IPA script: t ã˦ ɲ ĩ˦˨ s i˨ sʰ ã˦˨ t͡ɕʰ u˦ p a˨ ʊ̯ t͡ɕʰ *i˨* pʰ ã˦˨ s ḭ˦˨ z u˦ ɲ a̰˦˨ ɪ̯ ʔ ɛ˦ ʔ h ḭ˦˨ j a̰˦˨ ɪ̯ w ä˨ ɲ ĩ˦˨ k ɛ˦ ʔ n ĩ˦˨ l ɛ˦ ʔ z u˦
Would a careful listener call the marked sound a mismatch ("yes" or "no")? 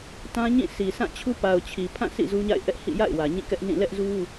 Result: no